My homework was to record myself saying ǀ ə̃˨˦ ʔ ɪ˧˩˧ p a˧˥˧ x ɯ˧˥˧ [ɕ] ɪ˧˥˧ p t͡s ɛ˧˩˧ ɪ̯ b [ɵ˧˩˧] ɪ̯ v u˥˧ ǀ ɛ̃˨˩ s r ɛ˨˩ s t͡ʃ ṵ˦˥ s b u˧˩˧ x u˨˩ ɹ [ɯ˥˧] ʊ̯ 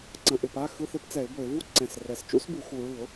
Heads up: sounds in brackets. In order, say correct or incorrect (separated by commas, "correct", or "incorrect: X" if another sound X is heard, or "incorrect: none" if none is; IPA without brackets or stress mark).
incorrect: θ, correct, incorrect: ɯ˧˩˧